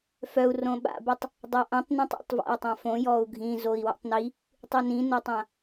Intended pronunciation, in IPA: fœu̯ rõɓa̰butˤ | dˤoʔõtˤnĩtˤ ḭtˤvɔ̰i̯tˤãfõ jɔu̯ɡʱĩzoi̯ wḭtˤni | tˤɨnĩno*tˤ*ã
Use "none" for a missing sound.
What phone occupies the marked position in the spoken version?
tˤ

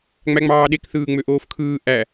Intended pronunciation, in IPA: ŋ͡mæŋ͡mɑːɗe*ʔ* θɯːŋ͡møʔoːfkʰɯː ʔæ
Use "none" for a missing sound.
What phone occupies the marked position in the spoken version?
k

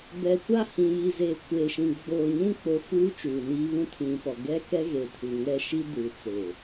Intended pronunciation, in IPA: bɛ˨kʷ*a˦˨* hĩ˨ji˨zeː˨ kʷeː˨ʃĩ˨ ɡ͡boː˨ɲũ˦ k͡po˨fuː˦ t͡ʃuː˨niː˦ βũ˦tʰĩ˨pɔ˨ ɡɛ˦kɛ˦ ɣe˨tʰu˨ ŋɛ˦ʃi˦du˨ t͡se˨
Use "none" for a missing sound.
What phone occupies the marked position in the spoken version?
a˦˨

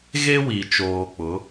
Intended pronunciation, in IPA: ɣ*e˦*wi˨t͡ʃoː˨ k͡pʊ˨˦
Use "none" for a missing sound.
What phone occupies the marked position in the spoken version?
e˦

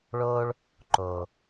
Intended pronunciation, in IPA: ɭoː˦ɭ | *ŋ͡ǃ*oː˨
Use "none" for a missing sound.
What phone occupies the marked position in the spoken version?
ǃ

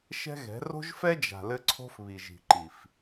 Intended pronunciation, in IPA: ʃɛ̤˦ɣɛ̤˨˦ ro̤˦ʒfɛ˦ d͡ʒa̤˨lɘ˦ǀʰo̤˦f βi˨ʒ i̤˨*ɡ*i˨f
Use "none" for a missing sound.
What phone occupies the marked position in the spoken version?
ǃ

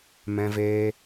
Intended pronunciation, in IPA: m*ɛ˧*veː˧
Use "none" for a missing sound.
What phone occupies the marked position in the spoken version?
ɛ̃˧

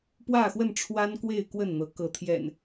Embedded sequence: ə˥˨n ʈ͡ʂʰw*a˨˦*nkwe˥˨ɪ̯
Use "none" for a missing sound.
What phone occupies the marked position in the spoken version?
a˦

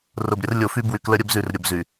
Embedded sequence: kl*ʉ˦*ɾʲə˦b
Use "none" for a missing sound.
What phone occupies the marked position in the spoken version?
ə˦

